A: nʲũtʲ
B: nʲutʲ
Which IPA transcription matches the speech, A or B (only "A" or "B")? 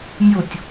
B